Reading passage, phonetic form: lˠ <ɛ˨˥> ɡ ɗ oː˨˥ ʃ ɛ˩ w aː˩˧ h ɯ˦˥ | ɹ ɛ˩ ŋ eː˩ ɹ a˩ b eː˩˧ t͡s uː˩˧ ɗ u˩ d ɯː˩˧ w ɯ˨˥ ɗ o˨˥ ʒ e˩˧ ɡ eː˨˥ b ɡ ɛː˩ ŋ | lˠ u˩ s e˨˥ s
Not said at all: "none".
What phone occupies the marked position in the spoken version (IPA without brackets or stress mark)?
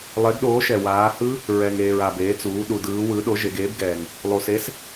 e˨˥